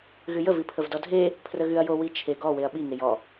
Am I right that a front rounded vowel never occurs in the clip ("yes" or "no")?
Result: no